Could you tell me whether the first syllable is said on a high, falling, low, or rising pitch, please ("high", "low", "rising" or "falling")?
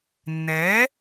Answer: rising